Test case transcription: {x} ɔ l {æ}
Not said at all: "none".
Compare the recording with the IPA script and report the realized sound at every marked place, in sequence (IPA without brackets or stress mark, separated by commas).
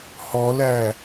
h, æ